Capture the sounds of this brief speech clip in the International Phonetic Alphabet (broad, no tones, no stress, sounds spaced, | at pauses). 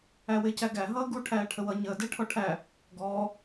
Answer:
æ w ɪː c æ ɡ æ ɦ ʌː ɡ u ʈʰ æː ʈʰ ə w ʌ ɲ əː d ɪː ʈʰ ɔ ʈʰ æ | ɡ ɔː